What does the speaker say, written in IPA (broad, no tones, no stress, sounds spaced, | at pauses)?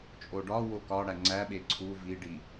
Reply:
t͡ʃʼ o ɖ ɒ w o k ɒ ɽ æ ŋ͡ǀ æ ɓ e ǀʰ u v i ɖ i